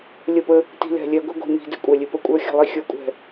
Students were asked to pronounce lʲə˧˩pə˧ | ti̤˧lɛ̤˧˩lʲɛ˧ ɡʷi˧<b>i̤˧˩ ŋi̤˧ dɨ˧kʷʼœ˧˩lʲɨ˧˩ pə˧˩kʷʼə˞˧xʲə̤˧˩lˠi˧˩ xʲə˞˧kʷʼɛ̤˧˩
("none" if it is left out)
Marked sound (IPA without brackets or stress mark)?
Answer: ɡʷ